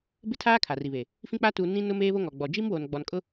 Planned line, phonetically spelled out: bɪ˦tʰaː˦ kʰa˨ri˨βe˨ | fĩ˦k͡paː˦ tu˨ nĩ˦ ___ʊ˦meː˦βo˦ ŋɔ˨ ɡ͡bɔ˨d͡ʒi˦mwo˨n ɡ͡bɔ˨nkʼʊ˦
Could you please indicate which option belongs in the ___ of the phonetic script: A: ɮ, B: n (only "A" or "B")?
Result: B